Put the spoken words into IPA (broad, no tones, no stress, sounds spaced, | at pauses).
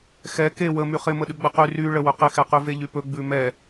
x ɛ k e w ə m y χ ɪ m ə ɗ ʉ ɡ͡b ə q y r y ɭ ə w ɵ q ɪ x ɛ q y v e ʎ y p ɵ ɡ͡b ʉ m ɛ